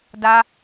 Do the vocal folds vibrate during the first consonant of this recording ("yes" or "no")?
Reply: yes